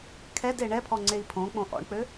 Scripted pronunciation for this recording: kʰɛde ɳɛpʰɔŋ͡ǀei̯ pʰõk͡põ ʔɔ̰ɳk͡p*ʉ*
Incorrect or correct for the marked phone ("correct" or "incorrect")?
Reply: incorrect